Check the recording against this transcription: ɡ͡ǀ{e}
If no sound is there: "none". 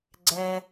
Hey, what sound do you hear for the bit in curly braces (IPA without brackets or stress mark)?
ɛ